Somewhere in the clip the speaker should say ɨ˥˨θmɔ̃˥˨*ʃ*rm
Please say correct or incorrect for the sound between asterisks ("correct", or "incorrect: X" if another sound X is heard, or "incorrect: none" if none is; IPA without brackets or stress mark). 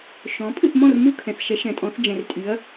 incorrect: none